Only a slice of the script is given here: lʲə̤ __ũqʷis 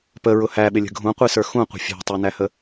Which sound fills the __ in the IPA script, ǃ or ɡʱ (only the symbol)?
ɡʱ